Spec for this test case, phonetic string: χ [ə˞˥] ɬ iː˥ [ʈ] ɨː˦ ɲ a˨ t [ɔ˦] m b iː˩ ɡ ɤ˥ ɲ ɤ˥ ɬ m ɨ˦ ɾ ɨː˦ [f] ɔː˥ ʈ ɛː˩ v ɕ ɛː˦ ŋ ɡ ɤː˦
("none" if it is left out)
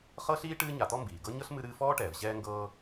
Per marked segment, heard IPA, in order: ɤ˥, ʈ, ɔ˦, f

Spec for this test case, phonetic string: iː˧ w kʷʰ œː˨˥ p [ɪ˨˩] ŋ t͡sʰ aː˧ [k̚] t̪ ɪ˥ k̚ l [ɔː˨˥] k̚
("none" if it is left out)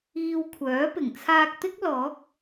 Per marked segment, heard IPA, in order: ɪ˨˩, k̚, ɔː˨˥

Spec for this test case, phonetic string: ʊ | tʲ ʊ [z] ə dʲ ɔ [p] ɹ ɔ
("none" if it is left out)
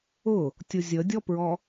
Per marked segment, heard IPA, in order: zʲ, p

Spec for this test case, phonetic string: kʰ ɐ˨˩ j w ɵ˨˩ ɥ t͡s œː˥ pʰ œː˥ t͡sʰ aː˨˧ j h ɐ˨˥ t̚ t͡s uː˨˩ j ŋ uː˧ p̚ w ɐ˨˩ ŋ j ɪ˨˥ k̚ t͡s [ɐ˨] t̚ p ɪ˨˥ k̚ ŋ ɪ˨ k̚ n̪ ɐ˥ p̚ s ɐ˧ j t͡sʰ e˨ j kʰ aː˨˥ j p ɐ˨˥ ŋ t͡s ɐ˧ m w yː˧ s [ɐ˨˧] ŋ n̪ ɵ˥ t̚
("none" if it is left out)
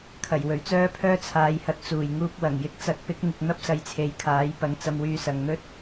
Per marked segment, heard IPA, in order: ɐ˨˥, ɐ˨

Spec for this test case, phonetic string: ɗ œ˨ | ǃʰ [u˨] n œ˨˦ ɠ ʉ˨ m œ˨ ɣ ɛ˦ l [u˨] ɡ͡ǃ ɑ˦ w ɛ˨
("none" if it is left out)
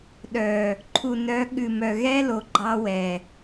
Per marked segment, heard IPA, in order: u˨, o˨

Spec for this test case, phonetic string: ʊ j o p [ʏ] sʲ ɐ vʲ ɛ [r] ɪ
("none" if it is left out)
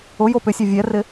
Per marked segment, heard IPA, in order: ʏ, r

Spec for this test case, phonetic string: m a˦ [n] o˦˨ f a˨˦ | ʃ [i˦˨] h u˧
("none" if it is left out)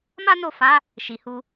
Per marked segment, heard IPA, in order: n, i˨

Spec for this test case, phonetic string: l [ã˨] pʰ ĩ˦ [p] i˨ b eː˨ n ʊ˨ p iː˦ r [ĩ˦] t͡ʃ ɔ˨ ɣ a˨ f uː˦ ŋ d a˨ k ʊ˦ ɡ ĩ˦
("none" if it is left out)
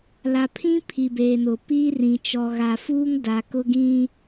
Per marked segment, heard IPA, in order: a˨, pʰ, ĩ˨

